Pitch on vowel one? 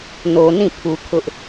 low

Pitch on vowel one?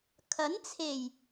rising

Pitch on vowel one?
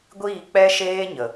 falling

